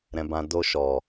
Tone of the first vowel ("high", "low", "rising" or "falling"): high